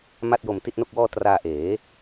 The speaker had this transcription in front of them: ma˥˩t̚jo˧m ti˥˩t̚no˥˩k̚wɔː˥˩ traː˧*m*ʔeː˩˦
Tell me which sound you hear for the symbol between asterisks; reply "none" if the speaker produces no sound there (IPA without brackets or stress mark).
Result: none